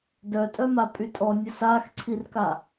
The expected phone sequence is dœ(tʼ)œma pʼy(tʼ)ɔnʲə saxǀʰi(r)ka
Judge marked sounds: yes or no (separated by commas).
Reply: yes, yes, yes